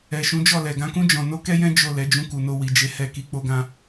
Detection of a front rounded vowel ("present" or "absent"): absent